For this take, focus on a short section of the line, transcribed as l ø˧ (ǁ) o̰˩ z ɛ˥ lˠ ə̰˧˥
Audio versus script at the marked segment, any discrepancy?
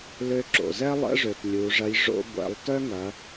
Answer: no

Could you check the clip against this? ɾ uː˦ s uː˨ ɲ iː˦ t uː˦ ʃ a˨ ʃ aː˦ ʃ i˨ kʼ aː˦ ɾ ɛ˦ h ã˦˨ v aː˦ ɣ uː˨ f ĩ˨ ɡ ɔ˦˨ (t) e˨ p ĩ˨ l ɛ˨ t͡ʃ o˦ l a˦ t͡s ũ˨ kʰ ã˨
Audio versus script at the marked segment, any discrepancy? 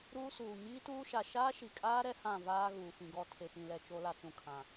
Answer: yes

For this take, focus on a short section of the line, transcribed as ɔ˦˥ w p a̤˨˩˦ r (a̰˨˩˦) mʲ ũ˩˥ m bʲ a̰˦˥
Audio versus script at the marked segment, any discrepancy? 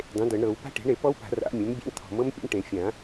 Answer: no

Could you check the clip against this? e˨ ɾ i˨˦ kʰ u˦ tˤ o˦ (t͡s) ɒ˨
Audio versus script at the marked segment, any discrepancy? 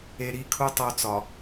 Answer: no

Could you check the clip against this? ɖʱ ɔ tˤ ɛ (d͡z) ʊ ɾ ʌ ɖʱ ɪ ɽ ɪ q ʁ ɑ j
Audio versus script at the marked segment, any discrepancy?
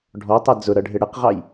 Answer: no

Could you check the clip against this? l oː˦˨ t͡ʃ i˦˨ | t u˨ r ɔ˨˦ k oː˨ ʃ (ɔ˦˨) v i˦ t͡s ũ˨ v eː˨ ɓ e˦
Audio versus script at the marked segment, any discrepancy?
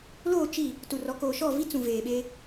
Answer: no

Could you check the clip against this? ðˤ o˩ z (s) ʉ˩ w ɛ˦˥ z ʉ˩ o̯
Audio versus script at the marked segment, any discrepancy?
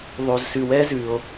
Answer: no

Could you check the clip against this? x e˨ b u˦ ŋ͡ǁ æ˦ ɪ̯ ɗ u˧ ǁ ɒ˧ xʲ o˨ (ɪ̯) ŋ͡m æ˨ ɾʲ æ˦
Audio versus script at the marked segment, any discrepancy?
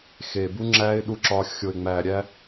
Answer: no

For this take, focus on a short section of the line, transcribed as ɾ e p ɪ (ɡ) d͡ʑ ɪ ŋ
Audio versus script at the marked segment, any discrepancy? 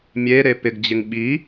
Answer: no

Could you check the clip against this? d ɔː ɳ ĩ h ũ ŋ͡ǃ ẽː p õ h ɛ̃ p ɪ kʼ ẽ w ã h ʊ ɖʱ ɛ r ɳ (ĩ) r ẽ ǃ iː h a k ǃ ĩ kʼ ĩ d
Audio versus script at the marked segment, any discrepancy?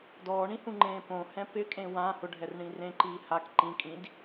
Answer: no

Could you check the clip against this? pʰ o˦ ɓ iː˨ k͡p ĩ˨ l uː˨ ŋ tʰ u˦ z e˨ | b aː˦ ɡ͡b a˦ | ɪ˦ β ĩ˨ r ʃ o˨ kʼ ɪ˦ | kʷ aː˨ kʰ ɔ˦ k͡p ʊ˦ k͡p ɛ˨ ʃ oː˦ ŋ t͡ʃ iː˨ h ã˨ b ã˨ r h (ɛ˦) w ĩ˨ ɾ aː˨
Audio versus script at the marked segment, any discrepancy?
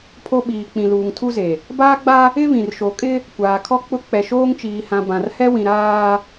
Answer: no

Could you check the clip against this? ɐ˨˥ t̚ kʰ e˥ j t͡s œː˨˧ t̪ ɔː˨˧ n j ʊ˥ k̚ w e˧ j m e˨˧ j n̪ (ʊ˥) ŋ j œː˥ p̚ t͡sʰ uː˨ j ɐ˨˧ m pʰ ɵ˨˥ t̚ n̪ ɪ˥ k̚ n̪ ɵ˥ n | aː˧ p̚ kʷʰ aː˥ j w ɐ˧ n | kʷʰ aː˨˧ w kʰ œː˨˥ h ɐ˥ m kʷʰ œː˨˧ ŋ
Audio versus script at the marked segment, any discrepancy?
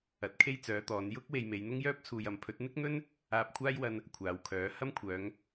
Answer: no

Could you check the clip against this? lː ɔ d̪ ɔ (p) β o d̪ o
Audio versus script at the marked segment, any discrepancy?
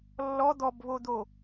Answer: yes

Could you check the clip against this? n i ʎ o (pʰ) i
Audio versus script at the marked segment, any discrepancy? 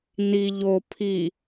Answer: no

